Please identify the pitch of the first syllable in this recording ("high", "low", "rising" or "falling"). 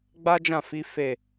high